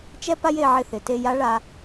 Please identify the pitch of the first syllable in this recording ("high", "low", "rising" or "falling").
high